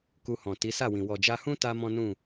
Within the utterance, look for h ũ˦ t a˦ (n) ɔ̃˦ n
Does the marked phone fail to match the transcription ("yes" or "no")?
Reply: yes